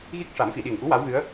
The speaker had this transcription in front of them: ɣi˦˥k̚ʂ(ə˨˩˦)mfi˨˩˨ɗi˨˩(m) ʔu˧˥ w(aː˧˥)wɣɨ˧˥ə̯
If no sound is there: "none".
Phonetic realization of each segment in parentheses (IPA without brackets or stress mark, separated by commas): a˨˩˦, ŋ, a˧˥